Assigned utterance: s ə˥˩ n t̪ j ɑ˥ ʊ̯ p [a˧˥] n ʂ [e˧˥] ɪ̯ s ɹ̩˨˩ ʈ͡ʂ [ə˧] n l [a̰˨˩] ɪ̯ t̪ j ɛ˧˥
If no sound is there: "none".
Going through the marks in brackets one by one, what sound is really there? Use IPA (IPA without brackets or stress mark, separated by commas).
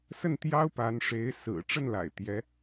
a˧˥, e˧˥, ə˥˩, a̰˨˩